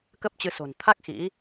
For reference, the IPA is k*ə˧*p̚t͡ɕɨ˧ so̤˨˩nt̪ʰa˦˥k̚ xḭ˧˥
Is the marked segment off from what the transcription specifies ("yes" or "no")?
yes